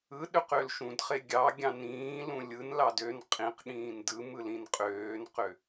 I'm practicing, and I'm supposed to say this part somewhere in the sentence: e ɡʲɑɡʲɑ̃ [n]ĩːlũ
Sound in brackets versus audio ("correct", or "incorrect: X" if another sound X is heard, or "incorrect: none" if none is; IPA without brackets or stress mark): correct